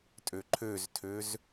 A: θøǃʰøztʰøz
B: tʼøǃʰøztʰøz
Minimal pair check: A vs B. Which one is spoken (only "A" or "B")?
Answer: B